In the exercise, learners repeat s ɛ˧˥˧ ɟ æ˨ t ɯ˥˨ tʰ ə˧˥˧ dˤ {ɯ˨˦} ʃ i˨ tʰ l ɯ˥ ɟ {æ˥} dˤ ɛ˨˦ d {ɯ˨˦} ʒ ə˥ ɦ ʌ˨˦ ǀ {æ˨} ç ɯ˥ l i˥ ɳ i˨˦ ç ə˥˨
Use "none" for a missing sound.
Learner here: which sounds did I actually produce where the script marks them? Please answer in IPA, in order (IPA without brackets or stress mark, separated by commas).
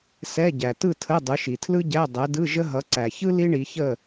ɯ˨˦, æ˧˥˧, ɯ˧˥˧, æ˨